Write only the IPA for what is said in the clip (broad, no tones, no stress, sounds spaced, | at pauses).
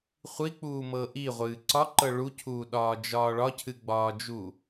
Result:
χʷ i k͡p uː m ɤ ʔ i ʁʷ ɨː ǀ ɒ ǃ ɤ ɭ u cʰ uː ɗ ɒː d͡ʒ ɒː ɭ ɒ cʰ ɨ ɡ͡b ɒː d͡ʒ u